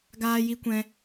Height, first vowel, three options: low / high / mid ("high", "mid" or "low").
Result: low